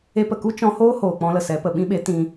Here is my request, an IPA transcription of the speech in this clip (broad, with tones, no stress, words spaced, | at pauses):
e˧pə˨ku˦ t͡ʃɔ̃˧hoː˦hoː˨ k͡pɔ̃˧lə˨sɛ˨˦pə˨ ɓĩ˧ɓe˨˦ tĩ˦